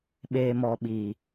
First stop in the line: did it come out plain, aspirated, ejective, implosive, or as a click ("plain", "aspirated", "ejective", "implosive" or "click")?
implosive